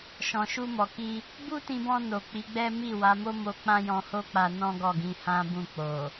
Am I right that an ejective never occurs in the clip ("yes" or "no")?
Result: yes